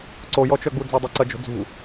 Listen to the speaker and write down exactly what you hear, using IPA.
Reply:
ǀojɔt͡ʃœɡ͡bu d͡zœdˤuǀɐd͡ʒo̤ d͡zṳ

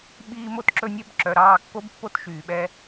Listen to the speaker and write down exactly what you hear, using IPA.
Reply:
ɓiː˦mo˦tǁɵ˦nʲœ˦b ǁœ˨ɾɑː˦˨kːo˦b pːo˦tʃyː˨ɓɛ˦

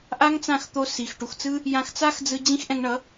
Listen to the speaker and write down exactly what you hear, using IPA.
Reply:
ʔa˦ŋt͡sã˦˨xt̪o˧ si˨x ʈu˨xt͡sɯ˦ | jã˧xt͡sa˦xd͡zɯ˧ d͡ʑĩ˦xʔɛ̃˧ŋɳʌ˨˦

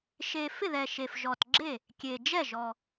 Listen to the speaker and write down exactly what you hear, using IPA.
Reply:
ʃe˨˩ fɪ˥˩ðɛ˨˩ʃe˨˩f ʒɔ˨˩tɡ͡ǁe˥˩ | kʲe˨˩d͡ʒɛ˥˩ʒɔ˨˩

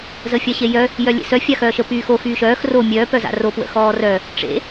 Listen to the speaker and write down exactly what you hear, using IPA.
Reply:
zəfʲaɕejœ | jœlʲḛsœ fʲaxœːʃə pyːxo xyːʃœːx ro mʲœː pœza̰ro pwə̰xɔːrœ | ʈ͡ʂḛ

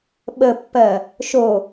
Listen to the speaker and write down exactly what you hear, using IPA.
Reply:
ɓəpːɜ | ʃo

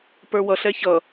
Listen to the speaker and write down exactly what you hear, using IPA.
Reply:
pə˞wʌɬɛ çʌ

